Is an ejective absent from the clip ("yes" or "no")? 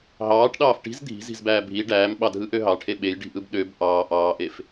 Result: yes